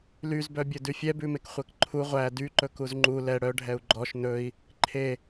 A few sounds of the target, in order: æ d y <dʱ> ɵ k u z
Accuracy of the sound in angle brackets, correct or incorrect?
incorrect